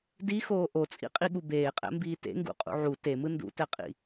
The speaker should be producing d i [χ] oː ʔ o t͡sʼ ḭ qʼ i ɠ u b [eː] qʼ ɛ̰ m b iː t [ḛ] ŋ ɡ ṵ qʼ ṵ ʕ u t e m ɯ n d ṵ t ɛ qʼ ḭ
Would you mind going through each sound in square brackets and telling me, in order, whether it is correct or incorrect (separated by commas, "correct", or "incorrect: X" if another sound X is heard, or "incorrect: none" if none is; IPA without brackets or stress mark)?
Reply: incorrect: x, correct, correct